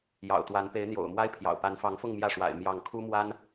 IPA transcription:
j ɑ̰˨˩ ʊ̯ t̪ w a˧˥ n p e˧˥ ɪ̯ n̪ j o̰˨˩ ʊ̯ m w a˥ ɪ̯ pʰ j ɑ̰˨˩ ʊ̯ p a˧˥ n f ɑ˧˥ ŋ f ʊ˥˧ ŋ m j ä˥˩ ʂ w a̰˨˩ ɪ̯ m j ɑ˥˩ ŋ kʰ u˥ m w a˥ n

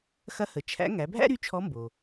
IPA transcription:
x ɐ˧˥ h ə˩˧ t͡ʃʰ æ̰˧˥ ŋ æ˩˧ bʱ æ̰˥ ɾ y˧˥ t͡ʃʰ ɔ˧˥ m b o˩

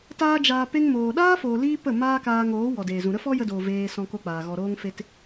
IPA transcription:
t aː˦ d͡ʒ aː˧ p e˦ ŋ m oː˨ ɗ aː˦ f oː˨ l iː˧ p ə˦˨ m aː˦ k aː˧ ŋ oː˨˦ w ɔ˨ d eː˨ z ũ˨ ɾ ə˦ f ɔ˦ j ə˧ d oː˨ v eː˧ s ɔ̃˧ k o˧ k͡p aː˨ ɣ ɔ˨ ɾ oː˧ ŋ f e˧ t

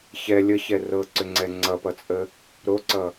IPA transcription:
ç ɛ lʲ ə ç ɛ r ɤ ǀ ʏ ŋ͡ǀ ɛ ŋ͡ǀ ʌ p ʌ t͡sʼ ə | ɾ o ǀ ʌ

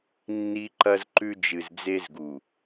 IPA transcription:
nː i˦ ǃ ɐ˦ z ǃ ʉ˦ d͡ʒ ɨ˨ z d͡z e˦ z ɡ u˨

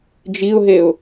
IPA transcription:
d͡ʒ i ʊ̯ ɦ e ʊ̯

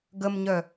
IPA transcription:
ɡ ə m ɲ œ

